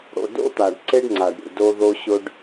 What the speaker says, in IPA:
ɽ o̰˨ d o̰˦ t̪ a˨ ɖ ǀ e˦ ɖ ŋ͡ǀ a˨ ɖ ɾʲ ṵ˨ d o˦ ð o˦ ɕ ʊ˦ ɖ

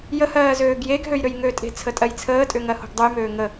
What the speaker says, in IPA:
j ə h ɜː z øː ɡ j e ɡ ɦ ø j ɾ ø j ŋ ø tʼ e̤ t͡sʰ ə tʼ ɜ j t͡sʰ əː tʼ ʏ ŋ ɜ h o̤ ɡ dˤ u j m øː ŋ ə

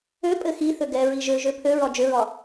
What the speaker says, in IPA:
ø pʼ ɘ x i θ ø ɡ ɛ ɹ i ʒ ø ʒ ø pʰ ø ɹ ɒ d͡ʒ ø ɹ ɒ

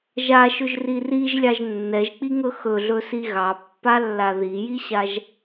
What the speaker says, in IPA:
ʒ a ʃ ɵ ʒ r i r i ʒ lʲ ɑ ʒ nː ɛ ʒ k͡p i ŋ ɵ x ɵ ɮ ɵ s i ɣ ɑ pː a lː a ð i j i ɕ a ʒ

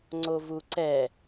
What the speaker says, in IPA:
ŋ͡ǀ o v u ǀ ɛ

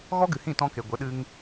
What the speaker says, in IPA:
ɣ ɔ˦ ɡ ɨ˨ h ĩ˦˨ t ɔ̃˧ k e˨ ɡʷ ə˨˦ ɗ ɨ˦ ŋ

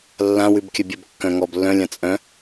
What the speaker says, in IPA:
lː ã w ʉ b kʲ œ bʲ ə b kː œ̃ ŋ ɔ b lː œ̃ lʲ ã t͡sʼ œ̃

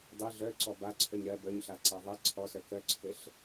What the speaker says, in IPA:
dˤ i ɮ œ ǀ ɔ b a ǀʰ œ ɲ ɾ ɜ b œ ɲ ɬ a ǀ a ðˤ e ǀʰ ɔ s œ k œ ǀʰ ɘ ɬ

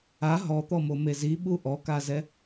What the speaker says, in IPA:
a ɦ ɔ t̪ ɔ m o m e z i ɓ u ʔ ɔ k a z ɛ

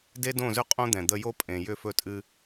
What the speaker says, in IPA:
d e˦ d õ˦˨ z ʏ˦ qʼ õ˦ d̪ ɛ̃˨ d̪ ə˧ j o˦ pʼ ẽ˨ j ʏ˦˨ f ɵ˧ tʼ ɨ˧

